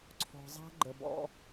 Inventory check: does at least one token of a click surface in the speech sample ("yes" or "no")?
yes